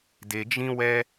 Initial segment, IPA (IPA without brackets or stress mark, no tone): d